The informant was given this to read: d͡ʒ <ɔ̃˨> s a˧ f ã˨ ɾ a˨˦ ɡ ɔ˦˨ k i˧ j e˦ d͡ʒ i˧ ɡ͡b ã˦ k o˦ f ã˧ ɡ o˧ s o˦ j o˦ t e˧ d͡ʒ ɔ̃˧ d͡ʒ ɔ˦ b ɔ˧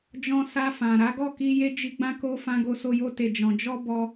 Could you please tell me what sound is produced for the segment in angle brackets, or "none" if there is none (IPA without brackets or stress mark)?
ɔ̃˧